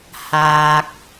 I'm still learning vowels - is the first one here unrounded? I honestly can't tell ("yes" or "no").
yes